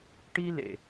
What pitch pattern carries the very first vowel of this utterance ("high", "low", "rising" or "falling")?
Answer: high